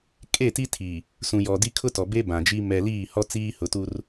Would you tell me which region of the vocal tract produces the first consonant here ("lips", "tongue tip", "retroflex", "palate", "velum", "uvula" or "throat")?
velum